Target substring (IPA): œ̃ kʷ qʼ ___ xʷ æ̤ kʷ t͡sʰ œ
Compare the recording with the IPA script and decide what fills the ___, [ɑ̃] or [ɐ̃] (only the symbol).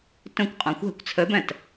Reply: ɑ̃